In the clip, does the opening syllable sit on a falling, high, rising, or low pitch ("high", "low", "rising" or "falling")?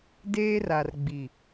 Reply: high